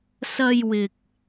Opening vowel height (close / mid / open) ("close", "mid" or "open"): open